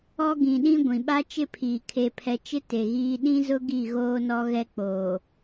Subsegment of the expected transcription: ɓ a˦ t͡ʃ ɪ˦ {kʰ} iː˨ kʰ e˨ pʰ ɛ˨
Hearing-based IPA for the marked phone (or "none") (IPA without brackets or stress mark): pʰ